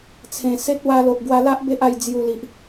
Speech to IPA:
t͡sʰẽ˨˩se˦t̚ wa˧lo˨ʔɡwa˧la˦ʔ be˦ʔa˧j d͡zju˧li˨ʔ

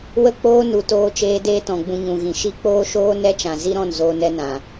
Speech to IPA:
wə˦k͡poː˦ nu˧toː˦t͡ʃeː˦ deː˦tɔ̃˨ɡ͡bũ˧ ɲũ˨ɣĩ˨ ʃi˦k͡poː˦ʃoː˦ nɛ˦t͡ʃã˨ zi˦ɾɔ̃˦˨n zoː˧nɛ˦nã˨

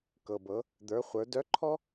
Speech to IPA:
kɤ˩bɤ˩˧ | d̪ə˞˩˧χʷə˞˩˧ dœ˧˥ǃʰɔ˥

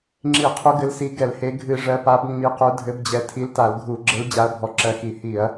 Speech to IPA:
ŋ͡ǁi˧˩˧qʰu˨˦ɡɘ˨˦lsi˨˦ ɡɛ˧˩˧lhe˨˦ ɡʱɨ˧˩˧ ʐɜ˨˦pa˨˦bŋ͡mi˨˦ qu˨˦dʱɘ˨˦bd͡ʑɛ˨˦ tʰi˨˦lta˧˩˧lɡʱu˧˩˧ɡ͡ǁɘ˨˦l d͡ʑa˨˦ɐ̯bʱɔ˨˦ǁɜ˨˦ xi˧˩˧ hi˧˩˧ɐ̯

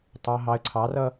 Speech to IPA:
tˤʌ˨ ɦɑ˨ə̯ǀʰɑ˨˦rʌ˦

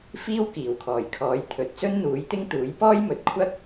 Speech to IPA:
fiː˥wkiː˨˩wkʰɔː˨˩jkʰɔː˨˥j t̪ʰɵ˨t̚ t͡sɵ˥nn̪uː˨˥jt̪ɪ˥ŋt̪uː˨˥j pɔː˥jmɵ˨t̚ kʷʰɐ˥k̚

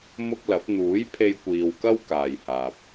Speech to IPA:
mʊ˥k̚lɐ˨˥p̚ n̪uː˨˥j pʰe˧jkʷiː˨wkɐ˥w kaː˨jhaː˨p̚

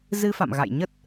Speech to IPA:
zɨ˧fa̰˧˨mɣa̰˧˨j ɲə˦˥t̚

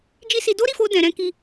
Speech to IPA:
d͡ʒi˦si˧ do˦ɾi˦˨fo˧ dɛ̃˨ɾɛ̃˨˦ki˧

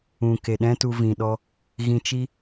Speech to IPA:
ũ˨ ke˨ɗɛ̃˦tu˧ vĩ˨ɗɔ˧ | ɣĩ˧t͡ʃi˦

